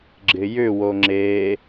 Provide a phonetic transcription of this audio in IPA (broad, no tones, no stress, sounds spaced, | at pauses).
ɡ͡ǁ ɪ j ʏ w o ŋ͡ǁ e